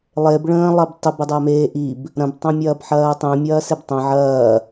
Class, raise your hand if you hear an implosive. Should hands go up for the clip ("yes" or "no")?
no